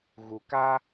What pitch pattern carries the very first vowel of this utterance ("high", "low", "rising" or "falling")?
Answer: low